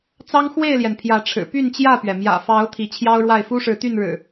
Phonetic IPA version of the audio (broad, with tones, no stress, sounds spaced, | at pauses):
t͡s ɑ˦ ŋ x w e˥˨ ɪ̯ l j ɛ˩ n pʰ j ä˨˦ ʈ͡ʂʰ ɻ̩˨˩ p y˥˨ n t͡ɕ j ä˥˨ p ɥ ɛ˩ m j ä̰˨˩ f ɑ˨˦ ʊ̯ t̪ʰ i˨˦ t͡ɕʰ j ɑ˦ ʊ̯ ɻ w a˥˨ ɪ̯ f u˦ ʂ ɻ̩˨˦ t̪ y˥˨ n ɻ ɻ̩˨˩